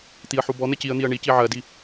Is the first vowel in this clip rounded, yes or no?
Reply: no